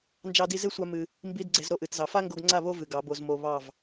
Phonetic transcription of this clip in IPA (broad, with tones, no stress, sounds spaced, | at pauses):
n d͡ʒ ɑ˧ d i˧ z e˦ sʷ a˧ m ɨ˧ | m b i˦ d ɡ͡ǀ e˧ z ɾ o˦ ʔ ɨ˨ t z ɑ˨ f a˦ ŋ ɡ o˧ ɡ ŋ͡ǀ a˦˨ β o˦ v ɨ˨ ɡ ɑ˨˦ b o˧ z m o˧ β ɑ˦˨ v